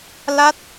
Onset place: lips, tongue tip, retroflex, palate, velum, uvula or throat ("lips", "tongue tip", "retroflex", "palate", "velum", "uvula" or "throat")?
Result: tongue tip